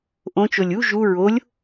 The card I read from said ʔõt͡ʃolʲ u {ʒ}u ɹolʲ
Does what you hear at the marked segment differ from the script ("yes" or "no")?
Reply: no